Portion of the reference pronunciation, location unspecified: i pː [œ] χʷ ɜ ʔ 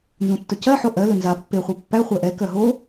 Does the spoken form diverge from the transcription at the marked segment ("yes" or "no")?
yes